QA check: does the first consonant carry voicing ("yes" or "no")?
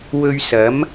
yes